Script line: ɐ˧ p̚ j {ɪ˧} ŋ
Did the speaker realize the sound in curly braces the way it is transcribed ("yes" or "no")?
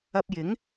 no